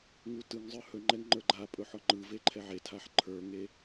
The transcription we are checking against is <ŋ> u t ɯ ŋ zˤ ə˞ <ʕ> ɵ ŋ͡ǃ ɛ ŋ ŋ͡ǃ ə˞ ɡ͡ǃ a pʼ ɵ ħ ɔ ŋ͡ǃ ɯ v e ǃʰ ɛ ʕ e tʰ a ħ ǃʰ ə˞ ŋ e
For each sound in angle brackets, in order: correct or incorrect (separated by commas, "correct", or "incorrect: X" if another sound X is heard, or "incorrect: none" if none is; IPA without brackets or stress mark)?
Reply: correct, incorrect: h